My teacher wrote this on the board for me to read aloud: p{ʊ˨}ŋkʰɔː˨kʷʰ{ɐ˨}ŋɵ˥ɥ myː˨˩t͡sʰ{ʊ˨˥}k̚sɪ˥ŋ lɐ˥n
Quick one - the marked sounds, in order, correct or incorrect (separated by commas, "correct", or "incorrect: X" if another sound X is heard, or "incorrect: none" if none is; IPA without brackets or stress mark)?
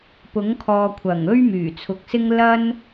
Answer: incorrect: ʊ˨˥, incorrect: ɐ˨˩, correct